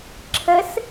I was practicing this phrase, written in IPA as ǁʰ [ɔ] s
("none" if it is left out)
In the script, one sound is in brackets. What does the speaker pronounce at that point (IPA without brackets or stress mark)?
ə